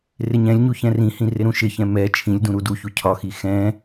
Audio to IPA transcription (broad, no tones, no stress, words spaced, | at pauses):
rɪɲɛ̃lʲɲu çɛ̃rĩhĩ rɪɾũʃɪçɛ̃ mɛ t͡ʃʰĩlʲ dũɾuduçu cʰɒxi xɛ̃